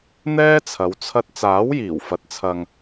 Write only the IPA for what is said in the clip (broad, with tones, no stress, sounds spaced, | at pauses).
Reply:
n̪ ɛː˥ t͡sʰ ɐ˨˧ w t͡sʰ ɐ˧ t̚ t͡s aː˨˥ w j iː˨˩ w f ɐ˨ t̚ t͡sʰ ɐ˨ ŋ